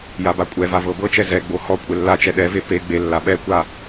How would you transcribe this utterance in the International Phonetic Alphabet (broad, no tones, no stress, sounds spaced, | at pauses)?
j a b a kʷʼ ɛ v a v ɤ b ɤ t͡ʃ ɛ z ɛ ɡ͡b o h ɔ kʷʼ e lː a t͡ʃ ɛ ɗ ɛ v e p e ɡ͡b e lː a ɓ ɛ kʷ a